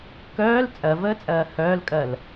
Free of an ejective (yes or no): no